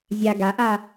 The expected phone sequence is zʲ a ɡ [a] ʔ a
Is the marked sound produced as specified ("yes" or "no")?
yes